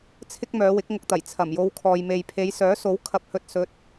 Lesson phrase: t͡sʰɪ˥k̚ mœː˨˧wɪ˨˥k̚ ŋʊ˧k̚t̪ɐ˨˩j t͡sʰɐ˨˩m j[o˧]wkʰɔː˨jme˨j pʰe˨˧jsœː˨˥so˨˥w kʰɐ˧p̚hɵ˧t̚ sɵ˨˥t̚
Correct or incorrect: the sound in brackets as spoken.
correct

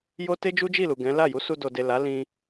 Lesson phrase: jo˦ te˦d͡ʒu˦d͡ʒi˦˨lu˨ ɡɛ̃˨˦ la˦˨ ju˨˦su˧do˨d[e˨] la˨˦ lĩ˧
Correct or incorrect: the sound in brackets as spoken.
correct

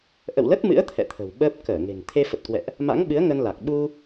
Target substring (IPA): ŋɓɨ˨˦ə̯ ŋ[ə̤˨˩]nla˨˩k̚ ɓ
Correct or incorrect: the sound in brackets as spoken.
incorrect: ə˧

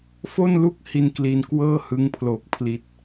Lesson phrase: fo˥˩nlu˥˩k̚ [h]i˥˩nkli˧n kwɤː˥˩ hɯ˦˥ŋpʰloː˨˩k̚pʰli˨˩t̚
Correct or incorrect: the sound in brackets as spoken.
correct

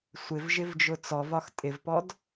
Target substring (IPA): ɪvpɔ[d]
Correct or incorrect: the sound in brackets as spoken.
correct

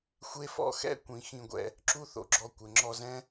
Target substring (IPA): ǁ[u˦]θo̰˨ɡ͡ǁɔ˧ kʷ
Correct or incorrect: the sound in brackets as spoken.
correct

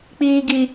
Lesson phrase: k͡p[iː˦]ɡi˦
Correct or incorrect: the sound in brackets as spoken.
correct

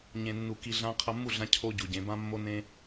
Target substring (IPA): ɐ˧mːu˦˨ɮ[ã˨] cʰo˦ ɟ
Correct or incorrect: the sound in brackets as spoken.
incorrect: ã˧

